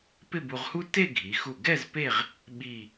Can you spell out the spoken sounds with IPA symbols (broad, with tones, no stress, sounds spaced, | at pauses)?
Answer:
p ɪ˥˧ b u˧ ʁ h u˥ t e˥˧ ɡʱ i˩˧ x u˧˩ ɡ ɛ˥˧ z p e˥˧ ʁ | ɓ i˥˧